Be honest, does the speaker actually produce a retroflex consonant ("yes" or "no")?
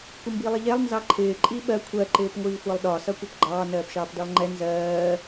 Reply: no